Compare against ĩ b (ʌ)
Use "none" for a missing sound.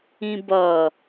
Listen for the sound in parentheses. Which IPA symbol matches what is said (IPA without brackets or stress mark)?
ʌ